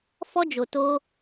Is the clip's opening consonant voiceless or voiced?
voiceless